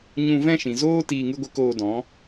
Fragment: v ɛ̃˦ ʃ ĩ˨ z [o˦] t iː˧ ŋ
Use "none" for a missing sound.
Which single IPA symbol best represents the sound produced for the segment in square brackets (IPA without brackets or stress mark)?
oː˦